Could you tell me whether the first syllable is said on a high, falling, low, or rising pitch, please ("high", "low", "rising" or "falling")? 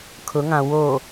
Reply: rising